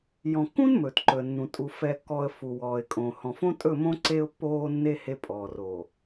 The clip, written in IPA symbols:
j ɔ̃˨ kː ũ˦ n m ɵː˨ t ǃ ɵ˨ ə̯ nː ũ˨ tʼ u˨ f ɛ˨ kː ɔː˨ ə̯ f u˨ w ɔː˨ ɪ̯ kʼ õ˨ h ɔ̃˨ f õ˦ tʼ ɵ˦˨ m õ˦ ǀ e˦ ʊ̯ pː oː˦ nː e˦ h e˦ pʼ ɔː˨ r oː˨

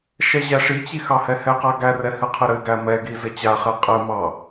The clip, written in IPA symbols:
ʃ ɛ ʑ æ ʂ i t͡ɕ i x ɑ h ɛ h ɛ q a ɡ æ r ɛ h ɨ qʰ ɘ ɾ ɘ ɡ æ m ɛ ɡ i z ɘ t͡ɕ a χ ɛ qʼ ɘ m ɑ

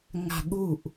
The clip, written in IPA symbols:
ŋ a̤ ɠ u ʔ

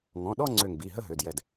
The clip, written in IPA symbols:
ŋ ɔ̃˩˧˩ ɗ ɔ˥˧ ŋ͡ǀ ø˧˩ ŋ b i˩˧˩ ɦ ə˥˧ ɦ ø˩˧˩ d j ɛ˧˩ d

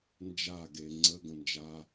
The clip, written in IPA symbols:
n d͡ʒ a ɡ e ŋ͡ǀ ə ɡ ə̃ n d͡ʒ a

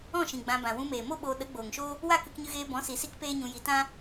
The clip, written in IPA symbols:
ɔ̃˦˨ ʃ ĩ˨ ɡ͡b ã˧ b ã˨ w ũ˧ m eː˨ m o˦ ɓ oː˧ ɗ ə˨˦ ɡ͡b oː˨ ŋ ʃ oː˦ | w a˦˨ k ɨ˧ k ɲ ɨ˧ ɣ eː˧ b ɔ̃˨˦ s i˨ s i˦ k p eː˦ ɲ ũ˧ j i˧ t ã˦

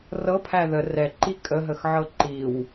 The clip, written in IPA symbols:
r ɤ pʰ æ ð ə r ɛ ǃ i kʼ ə ɦ ə x ʕ ɤ ǃ i w

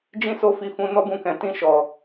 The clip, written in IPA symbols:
d͡ʒ ĩ˦ s o˦˨ f i˧ f ũ˧ n ɔ˦ b ũ˧ k ɛ̃˨ t ĩ˧ ʃ ɔ˨

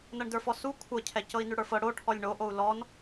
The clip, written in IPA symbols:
n ɤ ɳ d ə˞ f ɔ s u kʷʰ ɤ cʰ ɛ c ɤ i̯ n ʉ ɽ ə˞ f ɤ ɽ o ʈʰ ɔ lʲ ɳ o ʔ o u̯ l ɔ n

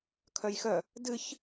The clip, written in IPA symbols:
kʰ œ j x œ | d ɨ ç

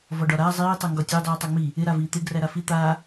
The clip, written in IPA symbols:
v ɒ ɖ ɒ ɾ aː zˤ iː tˤ əː ŋ ɡ ɒ tʲ əː dˤ iː tˤ a ŋ͡m i | ɪ ɾ a v iː t̪ ɪ ɡ r æ ɾ a f i t̪ aː

